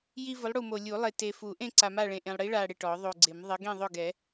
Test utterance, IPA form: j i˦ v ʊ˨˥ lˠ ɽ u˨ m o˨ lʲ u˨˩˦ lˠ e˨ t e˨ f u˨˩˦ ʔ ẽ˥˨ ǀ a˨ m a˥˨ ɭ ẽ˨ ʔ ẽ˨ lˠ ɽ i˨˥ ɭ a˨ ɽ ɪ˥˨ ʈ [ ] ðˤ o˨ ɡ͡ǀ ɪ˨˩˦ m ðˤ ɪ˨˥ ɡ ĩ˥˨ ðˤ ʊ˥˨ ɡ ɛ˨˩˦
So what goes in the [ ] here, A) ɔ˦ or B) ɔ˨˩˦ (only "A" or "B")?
B